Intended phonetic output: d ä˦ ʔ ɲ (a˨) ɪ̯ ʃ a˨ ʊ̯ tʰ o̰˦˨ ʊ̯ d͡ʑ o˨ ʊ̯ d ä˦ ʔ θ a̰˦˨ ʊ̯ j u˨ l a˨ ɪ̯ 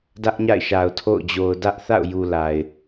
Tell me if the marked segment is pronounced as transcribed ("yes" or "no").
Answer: no